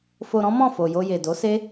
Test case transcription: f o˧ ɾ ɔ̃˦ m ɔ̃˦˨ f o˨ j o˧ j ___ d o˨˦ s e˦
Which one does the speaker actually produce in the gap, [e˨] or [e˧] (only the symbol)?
e˨